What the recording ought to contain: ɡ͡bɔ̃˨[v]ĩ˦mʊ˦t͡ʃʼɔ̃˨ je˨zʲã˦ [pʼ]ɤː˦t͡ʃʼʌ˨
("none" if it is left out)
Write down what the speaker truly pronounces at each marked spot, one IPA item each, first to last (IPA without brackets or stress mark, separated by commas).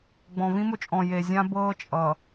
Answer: v, b